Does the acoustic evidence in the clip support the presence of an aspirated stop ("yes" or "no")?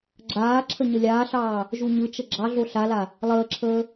yes